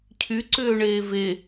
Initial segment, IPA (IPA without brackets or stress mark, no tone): cʰ